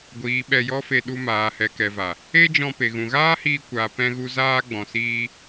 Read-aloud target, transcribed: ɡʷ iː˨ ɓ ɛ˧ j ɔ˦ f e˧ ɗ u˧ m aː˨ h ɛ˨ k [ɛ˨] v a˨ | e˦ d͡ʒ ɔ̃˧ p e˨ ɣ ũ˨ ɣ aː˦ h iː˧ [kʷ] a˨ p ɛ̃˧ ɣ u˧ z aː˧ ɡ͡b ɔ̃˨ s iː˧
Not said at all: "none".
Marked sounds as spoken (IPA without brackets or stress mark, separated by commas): ɛ˨, kʷ